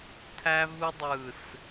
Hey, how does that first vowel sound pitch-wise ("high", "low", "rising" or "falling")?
high